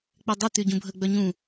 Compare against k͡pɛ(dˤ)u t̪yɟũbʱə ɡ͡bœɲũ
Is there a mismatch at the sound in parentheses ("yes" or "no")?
no